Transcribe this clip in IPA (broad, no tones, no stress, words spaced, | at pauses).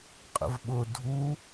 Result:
qʼə̰vɓʊ dʱu